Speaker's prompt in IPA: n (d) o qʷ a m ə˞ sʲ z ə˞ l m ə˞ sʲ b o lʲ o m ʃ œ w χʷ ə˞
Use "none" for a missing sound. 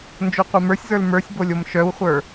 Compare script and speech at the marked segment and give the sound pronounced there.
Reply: d͡ʒ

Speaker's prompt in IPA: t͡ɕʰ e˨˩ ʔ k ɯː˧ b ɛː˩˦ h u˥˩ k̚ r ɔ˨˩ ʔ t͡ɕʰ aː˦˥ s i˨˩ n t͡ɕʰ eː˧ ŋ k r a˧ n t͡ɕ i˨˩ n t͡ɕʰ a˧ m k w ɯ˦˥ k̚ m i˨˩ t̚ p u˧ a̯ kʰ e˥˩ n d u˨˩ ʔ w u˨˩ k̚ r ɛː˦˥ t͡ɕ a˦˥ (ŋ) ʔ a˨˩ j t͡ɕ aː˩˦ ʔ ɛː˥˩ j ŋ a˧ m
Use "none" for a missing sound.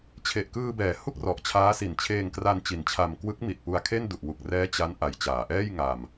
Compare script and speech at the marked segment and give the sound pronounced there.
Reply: n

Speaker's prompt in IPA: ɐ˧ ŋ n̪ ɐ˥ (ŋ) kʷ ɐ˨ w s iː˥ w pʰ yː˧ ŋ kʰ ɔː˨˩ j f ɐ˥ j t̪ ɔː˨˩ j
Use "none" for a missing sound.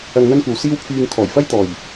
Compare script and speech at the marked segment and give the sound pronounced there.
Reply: n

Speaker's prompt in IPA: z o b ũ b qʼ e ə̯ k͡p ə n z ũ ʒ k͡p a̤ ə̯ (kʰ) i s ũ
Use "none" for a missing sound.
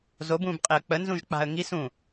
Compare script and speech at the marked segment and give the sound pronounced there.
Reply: ŋ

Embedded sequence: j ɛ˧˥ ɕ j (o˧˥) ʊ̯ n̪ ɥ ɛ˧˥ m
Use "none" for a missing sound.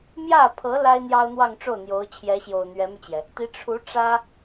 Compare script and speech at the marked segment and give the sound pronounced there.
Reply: o˨˩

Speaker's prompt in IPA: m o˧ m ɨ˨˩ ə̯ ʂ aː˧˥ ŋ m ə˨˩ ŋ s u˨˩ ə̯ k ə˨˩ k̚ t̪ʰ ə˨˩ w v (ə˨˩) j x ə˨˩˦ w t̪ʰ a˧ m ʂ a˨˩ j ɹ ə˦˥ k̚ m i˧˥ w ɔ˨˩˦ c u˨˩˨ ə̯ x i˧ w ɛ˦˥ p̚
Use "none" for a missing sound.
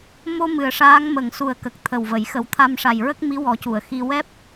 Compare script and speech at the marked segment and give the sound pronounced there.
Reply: ə˨˩˨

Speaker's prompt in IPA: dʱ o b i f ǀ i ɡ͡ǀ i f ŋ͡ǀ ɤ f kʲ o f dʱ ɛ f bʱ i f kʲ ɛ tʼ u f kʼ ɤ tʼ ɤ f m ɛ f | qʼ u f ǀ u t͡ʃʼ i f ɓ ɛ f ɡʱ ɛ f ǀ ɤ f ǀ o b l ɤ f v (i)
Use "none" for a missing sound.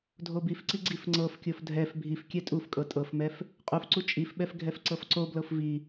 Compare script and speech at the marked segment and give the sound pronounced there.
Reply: i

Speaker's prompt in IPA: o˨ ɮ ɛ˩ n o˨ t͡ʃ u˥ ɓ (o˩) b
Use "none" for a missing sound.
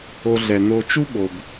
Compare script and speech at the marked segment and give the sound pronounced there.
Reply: o˩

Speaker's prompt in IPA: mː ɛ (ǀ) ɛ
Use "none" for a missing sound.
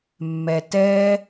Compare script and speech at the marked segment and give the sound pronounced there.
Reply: t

